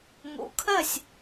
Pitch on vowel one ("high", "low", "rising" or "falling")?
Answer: low